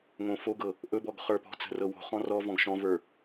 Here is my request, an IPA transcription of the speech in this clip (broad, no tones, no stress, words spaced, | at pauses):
ŋõfoɡɤ | ʔɵbɔɡ χə˞pɔ̤t͡sə̤ rɤwo̤χɔ̃ rɔ vɔ̃ɡʃɔ̃və˞